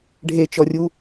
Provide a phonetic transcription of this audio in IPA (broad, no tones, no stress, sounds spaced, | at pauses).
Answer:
ɖʱ e t͡ʃ ɔ rʲ u